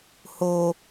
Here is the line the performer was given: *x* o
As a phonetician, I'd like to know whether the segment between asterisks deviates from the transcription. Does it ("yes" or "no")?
yes